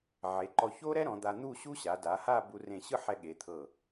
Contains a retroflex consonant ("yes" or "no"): no